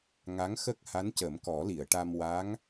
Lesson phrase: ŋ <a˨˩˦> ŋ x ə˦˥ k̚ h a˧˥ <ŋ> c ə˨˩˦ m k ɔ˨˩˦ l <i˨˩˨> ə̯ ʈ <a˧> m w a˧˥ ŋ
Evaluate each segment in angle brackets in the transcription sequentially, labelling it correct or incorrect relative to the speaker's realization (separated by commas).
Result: incorrect, incorrect, correct, correct